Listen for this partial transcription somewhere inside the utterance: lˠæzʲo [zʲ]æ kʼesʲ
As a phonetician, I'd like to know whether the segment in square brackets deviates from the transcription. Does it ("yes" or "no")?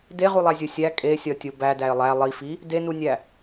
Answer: yes